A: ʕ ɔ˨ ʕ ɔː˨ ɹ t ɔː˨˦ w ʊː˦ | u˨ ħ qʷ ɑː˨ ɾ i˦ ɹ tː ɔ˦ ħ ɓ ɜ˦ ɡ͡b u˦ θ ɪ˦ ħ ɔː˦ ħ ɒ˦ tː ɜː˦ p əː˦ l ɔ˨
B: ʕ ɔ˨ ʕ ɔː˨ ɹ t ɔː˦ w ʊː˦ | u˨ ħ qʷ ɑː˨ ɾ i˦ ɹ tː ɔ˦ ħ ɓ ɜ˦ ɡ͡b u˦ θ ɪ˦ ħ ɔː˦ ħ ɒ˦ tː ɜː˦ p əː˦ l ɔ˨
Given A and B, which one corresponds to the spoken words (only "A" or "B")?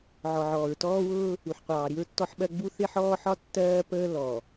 B